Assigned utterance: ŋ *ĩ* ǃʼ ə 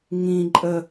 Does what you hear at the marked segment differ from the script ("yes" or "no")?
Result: no